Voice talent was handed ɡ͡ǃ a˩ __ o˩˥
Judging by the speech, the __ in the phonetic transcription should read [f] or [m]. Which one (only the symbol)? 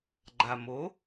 m